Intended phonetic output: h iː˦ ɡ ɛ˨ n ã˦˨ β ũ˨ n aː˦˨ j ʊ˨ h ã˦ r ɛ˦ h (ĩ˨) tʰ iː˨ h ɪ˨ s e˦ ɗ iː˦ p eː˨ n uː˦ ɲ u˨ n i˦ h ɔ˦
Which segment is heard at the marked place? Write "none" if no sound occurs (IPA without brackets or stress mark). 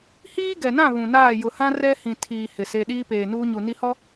ĩ˨